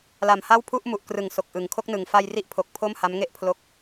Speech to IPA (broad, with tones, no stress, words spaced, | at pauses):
la˨˩mha˥˩wpʰu˥˩ʔmu˨˩ʔ krɯ˨˩ŋ so˨˩k̚ʔɯ˩˦ŋkʰo˦˥k̚nɯ˨˩ŋ fa˧jri˦˥ʔpʰo˨˩k̚ pʰo˥˩mha˦˥mŋe˥˩ʔpʰlo˦˥k̚